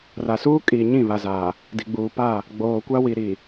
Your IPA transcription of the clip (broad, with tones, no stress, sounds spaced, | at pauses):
r a˨ s uː˦ kʼ iː˨ ɲ ĩ˦˨ β a˨ z aː˨ | d i˨ ɡ͡b uː˨ p a˦˨ | ɡ͡b oː˨ kʷ a˦ w i˨ ɾ i˨